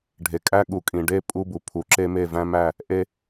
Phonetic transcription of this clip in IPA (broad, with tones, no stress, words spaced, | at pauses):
ɖʱe˨kʼæ˦ ɠu˨ kʼĩ˨ɖe˦ pʼu˦bu˨ pʰu˨˦ǁe˦ me˦˨væ̃˦mæ˦˨ | ʔe˦